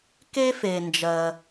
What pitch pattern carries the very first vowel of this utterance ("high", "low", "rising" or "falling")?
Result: high